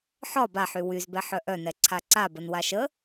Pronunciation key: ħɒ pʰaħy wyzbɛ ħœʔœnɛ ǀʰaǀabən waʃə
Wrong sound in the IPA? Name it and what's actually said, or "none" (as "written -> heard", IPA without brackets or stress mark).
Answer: pʰ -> b